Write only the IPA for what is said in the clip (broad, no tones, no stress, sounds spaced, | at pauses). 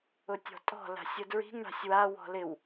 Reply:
ʊ tʲ ɔ̤ tʼ ɔ̤ l a̤ sʲ ʊ d ɹ i̤ ŋ ɳ a̤ sʲ w a w ɔ̤ l ɪ w